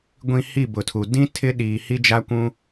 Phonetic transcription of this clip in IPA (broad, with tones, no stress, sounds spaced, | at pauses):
ɡʷ ĩ˨ h i˦˨ b ʊ˨ tʰ u˨ d ĩ˦ tʰ ɪ˦ ɗ iː˨ h i˦ d͡ʒ a˦ kʷ ũ˦